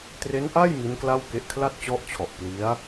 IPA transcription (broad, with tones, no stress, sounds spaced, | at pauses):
t r e˦˥ n ʔ a˥˩ j m i˦˥ n k l a˥˩ w k e˦˥ ʔ kʰ l a˥˩ t̚ t͡ɕ ɔ˦˥ ʔ t͡ɕʰ ɔ˨˩ ʔ p l i˦˥ a̯